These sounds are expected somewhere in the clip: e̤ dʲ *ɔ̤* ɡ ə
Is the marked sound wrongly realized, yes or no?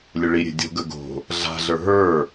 yes